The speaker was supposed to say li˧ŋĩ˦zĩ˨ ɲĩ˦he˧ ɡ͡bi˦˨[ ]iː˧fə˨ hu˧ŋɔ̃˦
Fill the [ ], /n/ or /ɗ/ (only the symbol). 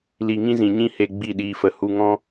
ɗ